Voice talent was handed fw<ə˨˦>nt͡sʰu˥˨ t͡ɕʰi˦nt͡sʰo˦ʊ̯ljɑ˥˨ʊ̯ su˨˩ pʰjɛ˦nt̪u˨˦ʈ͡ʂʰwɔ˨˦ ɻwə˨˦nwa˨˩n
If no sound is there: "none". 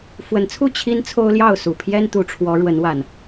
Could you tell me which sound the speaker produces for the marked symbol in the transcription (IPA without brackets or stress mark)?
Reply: ə˨˦